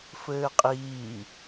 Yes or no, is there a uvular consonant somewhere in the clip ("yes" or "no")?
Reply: yes